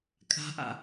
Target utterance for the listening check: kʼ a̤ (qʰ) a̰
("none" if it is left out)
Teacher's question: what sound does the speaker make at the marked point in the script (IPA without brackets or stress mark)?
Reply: ʔ